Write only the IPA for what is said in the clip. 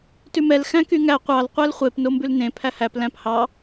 t ʉ m ɛ l x æ̃ k y ŋ æ qʷ ɑ l qʷ æ l χʷ e p n o m b ʉ l n ẽ pʰ æ h æ p l æ̃ p h ɑ

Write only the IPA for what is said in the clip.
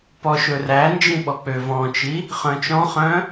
p ɔ ʃ ɵ r æ n d͡ʒ ĩ ɓ ɔ k͡p ø v ɔ̃ t͡ʃ i | χ œ̃ t͡ʃ ɔ̃ χ œ̃

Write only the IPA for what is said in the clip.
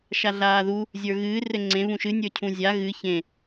ʃ a ɮ aː ð u | zʲ ə˞ ɣ ɨː r ɘ ŋ͡ǀ ẽ β ũ ʃ ɨ nʲ ə˞ cʰ ũ zʲ a ɣ ɨ ç ẽ

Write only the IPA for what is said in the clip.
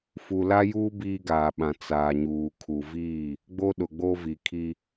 f u˨ l a˦ j uː˦ b iː˦ ɡ aː˨ ɓ ã˨ t͡s aː˨ ɲ uː˨ kʰ u˨ v iː˦˨ | ɡ͡b o˦ ɗ ʊ˨ ɡ͡b o˦ v i˨ kʰ i˦

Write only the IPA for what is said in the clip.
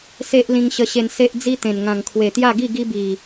s e˦ ʔ l ĩ˧ ŋ ɕ ə˧ ɕ e˧ n s e˦ ʔ d͡z i˦ t̪ ẽ˨˩ n ŋ ã˨˩ ŋ kʰ w e˨˩ t̪ j a˥˧ ɡ i˥˧ ɡ i˦ b i˨˩

